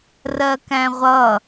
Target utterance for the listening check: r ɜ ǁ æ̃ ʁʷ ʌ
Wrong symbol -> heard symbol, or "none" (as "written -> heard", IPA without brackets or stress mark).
ǁ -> k